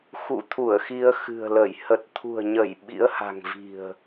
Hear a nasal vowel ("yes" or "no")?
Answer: no